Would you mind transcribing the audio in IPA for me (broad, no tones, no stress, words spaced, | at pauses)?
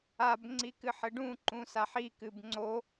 ab ŋ͡ǀikɨħɘɖũ ǃũsaħi kɨbŋ͡ǀo